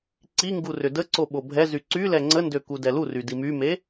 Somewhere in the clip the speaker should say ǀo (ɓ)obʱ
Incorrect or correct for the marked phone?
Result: correct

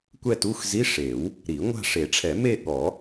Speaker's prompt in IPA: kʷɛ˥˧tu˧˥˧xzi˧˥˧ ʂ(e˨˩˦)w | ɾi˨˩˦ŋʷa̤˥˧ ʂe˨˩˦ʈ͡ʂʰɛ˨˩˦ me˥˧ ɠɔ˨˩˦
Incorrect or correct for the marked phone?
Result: correct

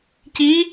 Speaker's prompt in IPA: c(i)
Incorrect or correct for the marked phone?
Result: correct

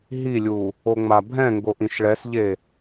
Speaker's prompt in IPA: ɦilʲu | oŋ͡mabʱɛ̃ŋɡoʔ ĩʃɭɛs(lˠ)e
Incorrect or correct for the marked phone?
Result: incorrect: ʎ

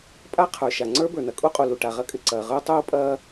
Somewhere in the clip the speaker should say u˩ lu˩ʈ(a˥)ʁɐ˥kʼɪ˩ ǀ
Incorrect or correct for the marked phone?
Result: incorrect: a˩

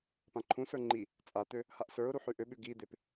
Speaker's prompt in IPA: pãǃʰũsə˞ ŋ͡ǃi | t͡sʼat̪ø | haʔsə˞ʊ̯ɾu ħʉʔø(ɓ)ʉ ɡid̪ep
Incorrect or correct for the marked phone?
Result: correct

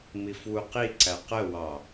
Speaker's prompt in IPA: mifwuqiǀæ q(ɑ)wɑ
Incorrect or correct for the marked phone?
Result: incorrect: ə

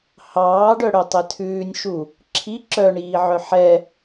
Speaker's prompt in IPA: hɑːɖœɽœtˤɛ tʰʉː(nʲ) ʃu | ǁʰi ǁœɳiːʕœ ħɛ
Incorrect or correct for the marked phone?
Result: correct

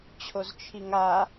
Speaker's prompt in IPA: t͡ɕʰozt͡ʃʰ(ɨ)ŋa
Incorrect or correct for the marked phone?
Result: incorrect: i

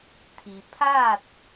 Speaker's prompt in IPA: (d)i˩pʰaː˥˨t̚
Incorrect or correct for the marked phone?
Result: incorrect: t̪ʰ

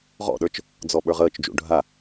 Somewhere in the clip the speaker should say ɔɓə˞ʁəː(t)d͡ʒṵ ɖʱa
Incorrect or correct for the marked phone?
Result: incorrect: t͡ʃ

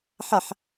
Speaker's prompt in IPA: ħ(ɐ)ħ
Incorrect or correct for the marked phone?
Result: incorrect: a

